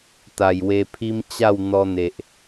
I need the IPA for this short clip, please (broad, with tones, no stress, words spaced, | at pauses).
t̪a˨˩jwe˧pʰi˦m t͡ɕa˥˧wn̪ɔ˧n̪e˨ʔ